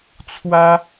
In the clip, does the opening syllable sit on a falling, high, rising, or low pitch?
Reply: high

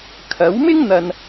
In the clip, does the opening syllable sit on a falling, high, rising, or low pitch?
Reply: rising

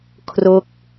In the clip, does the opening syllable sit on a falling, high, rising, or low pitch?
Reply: falling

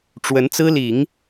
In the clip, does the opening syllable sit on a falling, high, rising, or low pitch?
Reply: rising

